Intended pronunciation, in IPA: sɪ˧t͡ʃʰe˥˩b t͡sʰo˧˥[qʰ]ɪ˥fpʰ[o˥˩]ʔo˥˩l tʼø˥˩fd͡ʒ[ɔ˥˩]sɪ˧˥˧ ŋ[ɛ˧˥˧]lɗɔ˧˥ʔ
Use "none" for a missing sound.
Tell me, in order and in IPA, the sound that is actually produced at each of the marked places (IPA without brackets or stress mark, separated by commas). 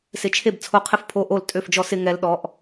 qʰ, o˧˥˧, ɔ˧˥, ɛ˧˥˧